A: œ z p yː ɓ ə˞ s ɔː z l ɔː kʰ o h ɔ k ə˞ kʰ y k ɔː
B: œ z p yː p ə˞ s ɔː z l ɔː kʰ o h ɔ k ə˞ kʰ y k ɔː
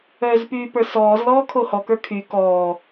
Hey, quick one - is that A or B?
B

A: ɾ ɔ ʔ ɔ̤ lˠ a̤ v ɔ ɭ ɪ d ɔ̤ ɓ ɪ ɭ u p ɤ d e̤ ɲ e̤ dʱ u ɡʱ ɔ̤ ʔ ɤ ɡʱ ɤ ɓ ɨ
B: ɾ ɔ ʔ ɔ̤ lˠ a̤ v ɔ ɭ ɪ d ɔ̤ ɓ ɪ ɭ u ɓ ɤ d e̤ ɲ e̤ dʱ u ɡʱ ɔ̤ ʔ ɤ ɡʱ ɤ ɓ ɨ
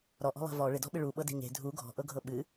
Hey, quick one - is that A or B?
B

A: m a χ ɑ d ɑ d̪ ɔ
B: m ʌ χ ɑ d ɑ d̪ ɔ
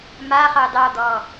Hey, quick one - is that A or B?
A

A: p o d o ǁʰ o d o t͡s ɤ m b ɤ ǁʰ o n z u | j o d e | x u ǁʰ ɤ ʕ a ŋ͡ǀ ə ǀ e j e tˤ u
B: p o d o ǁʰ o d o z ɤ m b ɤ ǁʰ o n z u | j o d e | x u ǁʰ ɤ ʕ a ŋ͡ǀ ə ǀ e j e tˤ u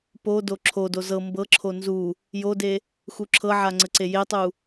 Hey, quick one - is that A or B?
B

